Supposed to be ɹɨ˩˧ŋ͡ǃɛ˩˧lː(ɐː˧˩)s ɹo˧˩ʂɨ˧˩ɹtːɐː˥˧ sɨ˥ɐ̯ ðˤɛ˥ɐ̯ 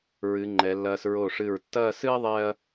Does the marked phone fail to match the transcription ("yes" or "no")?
yes